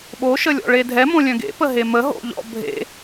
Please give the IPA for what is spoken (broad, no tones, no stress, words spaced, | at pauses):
ɓoʃəlʲɔ̰ ɭedʱɛmõlʲœ̃ ɡḛ pəɦemə ɦo̰ʎɔ̰ bʱḛ